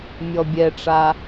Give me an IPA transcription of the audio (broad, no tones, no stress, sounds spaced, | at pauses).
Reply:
mʲ ɔ bʲ ɛ ʈ͡ʂ a